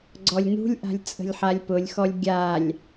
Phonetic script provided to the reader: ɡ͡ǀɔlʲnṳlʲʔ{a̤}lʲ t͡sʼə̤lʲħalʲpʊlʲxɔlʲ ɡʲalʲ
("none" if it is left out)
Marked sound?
a̤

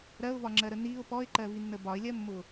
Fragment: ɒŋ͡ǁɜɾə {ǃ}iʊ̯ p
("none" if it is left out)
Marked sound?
n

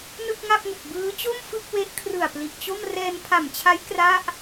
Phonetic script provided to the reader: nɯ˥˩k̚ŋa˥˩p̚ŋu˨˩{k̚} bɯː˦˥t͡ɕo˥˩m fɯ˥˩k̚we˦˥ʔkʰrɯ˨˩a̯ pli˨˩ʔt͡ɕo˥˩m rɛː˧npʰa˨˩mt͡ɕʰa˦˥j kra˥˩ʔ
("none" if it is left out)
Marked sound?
k̚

